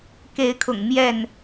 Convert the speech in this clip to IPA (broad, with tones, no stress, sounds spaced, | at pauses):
k e˨˦ ɪ̯ kʰ ʊ̰˨˩ ŋ m j ɛ˥˨ n